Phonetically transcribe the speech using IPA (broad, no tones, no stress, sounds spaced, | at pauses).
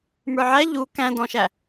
m ə˞ ʕ æ ʎ u k æ̃ d ɔ̃ ʃ æ